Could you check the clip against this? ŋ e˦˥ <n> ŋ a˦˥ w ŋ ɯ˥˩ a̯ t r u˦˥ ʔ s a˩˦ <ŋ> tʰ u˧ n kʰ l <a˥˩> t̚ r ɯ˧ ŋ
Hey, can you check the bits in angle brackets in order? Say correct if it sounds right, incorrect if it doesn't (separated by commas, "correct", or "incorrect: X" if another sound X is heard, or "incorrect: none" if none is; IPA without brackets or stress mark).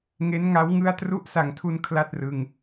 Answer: correct, correct, correct